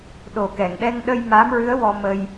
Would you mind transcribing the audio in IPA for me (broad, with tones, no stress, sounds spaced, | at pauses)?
ɗ o˨˩ k ɛ˨˩˨ ŋ ɗ ɛ˧ ŋ ɗ ə˧ j m a˧˥ m ɹ ɨ˧˥ ə̯ w ɔ˧ m ə˧ j